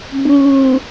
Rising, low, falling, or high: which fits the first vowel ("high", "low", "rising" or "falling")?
low